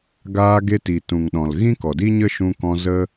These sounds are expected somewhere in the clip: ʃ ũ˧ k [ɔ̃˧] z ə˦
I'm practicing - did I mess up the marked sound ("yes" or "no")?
no